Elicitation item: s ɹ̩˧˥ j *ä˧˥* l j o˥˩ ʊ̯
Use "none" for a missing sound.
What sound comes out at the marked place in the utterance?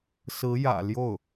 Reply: ä̰˨˩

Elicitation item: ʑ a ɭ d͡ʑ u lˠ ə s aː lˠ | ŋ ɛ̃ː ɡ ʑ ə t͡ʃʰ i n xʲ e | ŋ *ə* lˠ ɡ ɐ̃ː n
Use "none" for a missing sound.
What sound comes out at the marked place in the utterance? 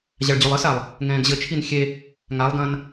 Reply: a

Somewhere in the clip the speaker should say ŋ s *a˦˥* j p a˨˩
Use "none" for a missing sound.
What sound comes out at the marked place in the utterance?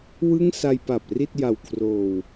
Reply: a˧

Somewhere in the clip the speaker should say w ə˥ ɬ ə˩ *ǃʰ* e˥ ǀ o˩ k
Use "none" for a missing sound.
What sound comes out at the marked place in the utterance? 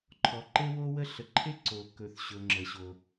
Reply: ǃʰ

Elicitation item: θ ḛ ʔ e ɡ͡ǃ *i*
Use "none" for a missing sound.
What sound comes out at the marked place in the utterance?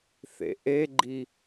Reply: i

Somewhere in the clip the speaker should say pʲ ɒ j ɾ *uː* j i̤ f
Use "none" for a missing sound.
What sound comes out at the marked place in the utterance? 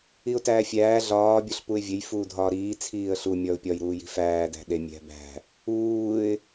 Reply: uː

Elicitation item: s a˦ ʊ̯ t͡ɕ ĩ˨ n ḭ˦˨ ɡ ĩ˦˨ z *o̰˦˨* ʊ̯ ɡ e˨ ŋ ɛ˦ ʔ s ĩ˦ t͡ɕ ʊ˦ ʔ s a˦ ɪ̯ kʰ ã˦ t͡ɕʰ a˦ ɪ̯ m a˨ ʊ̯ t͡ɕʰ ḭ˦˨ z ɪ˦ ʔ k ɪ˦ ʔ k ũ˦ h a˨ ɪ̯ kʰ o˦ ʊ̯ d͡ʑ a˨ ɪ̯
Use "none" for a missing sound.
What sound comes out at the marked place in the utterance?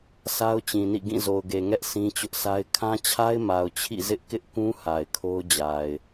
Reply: o˨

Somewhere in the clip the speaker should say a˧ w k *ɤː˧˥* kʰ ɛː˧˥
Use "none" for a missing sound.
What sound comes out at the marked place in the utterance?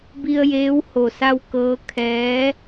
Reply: ɤː˧˥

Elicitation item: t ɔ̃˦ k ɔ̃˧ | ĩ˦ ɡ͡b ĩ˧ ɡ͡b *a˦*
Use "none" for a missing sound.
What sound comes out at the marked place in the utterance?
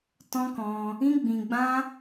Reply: ã˦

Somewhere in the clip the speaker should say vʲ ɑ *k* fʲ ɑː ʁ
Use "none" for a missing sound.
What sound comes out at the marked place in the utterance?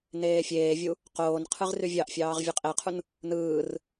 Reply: ʔ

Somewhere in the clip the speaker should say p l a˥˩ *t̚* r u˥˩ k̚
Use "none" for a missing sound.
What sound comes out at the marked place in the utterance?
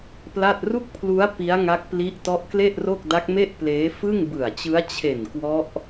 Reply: t̚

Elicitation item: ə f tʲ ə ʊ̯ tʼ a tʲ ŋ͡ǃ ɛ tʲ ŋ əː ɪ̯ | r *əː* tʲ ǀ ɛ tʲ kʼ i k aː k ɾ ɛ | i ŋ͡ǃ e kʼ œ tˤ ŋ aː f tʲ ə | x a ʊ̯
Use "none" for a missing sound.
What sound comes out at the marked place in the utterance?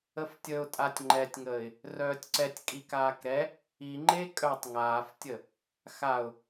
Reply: œː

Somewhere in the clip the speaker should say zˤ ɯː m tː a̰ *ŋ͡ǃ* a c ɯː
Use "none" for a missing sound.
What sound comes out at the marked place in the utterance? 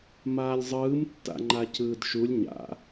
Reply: ŋ͡ǃ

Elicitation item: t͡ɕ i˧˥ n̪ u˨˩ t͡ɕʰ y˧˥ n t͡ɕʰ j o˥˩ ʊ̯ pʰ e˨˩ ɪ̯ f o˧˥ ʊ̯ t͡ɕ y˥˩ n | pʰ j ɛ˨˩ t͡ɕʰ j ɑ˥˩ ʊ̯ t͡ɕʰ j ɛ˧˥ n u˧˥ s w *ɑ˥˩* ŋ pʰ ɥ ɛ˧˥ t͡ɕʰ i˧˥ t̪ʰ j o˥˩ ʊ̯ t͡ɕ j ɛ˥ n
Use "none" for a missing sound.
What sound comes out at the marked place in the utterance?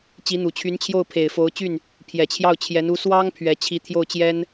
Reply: ɑ˥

